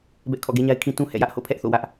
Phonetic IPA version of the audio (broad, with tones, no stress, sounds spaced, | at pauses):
b ɛ˦ ʔ kʰ ɔ̰˦˨ ɡ e˦ ɲ a˦ ɪ̯ kʰ ĩ˦ t ũ˦ h ɛ̰˦˨ j ä˦ ʔ h o̰˦˨ pʰ ɛ˦ ʔ θ o̰˦˨ w ä˦ ʔ